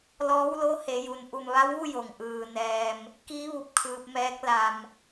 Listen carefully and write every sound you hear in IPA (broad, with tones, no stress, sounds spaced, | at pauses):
l ɔː˧˥ w l o˧˥ h e˩˧ j u˩ n ʔ u˧˩ m ʋ a˧˥ w ʋ u˥˨ j o˩ ŋ ʔ ɯː˩ n ɛː˩ m | k i˧˥ ʋ u˧˩ p̚ kʰ ɯː˧ p̚ m ɛː˧˥ k̚ l a˩ m